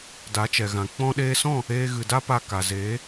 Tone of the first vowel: rising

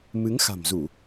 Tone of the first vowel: rising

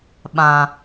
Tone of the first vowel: low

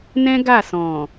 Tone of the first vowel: high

